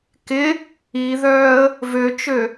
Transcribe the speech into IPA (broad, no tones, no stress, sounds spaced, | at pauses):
k ɪ | i ð œː ə̯ | v ø t͡ʃ ø